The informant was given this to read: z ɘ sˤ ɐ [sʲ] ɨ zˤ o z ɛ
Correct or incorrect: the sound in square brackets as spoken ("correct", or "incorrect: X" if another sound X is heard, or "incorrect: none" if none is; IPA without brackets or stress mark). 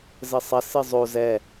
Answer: incorrect: s